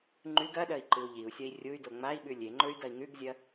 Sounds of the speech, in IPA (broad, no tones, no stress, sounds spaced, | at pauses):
ŋ͡ǃ ʉ ɡ ɐ ɗ ɐ i̯ ǃ ɨ u̯ ʎ i u̯ sʲ ɐ i̯ rʲ u y̯ d o ŋ͡m a i̯ ɓ ʉ lʲ e ŋ͡ǃ ɵ y̯ d ɐ i̯ ŋ ʉ ɡ zʲ ɐ